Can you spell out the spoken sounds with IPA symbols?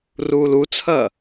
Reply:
r uː l u t͡sʰ ɐː

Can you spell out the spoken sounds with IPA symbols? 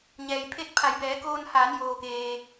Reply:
ɲ ɛː˩ j pʰ e˥˨ t̚ pʰ a˩˧ j b ɛː˩˧ k oː˧ n h aː˩˧ n j oː˩ k eː˩

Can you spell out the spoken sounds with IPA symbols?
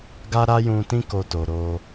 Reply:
ɡ a˦ ɾ a˦ j ũ˧ t ĩ˦ k o˧ t o˨ ɾ o˧

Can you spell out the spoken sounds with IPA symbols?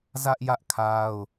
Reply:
z ä˦ ʔ j ä˦ ʔ kʰ a˦ ʊ̯

